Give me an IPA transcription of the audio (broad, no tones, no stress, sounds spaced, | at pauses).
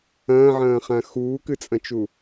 ɐ̃ː ʕ ɐ̃ː χ ã x uː k ɨ t͡sʼ ɐ̃ t͡ʃ u